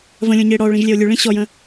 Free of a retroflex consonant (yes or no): no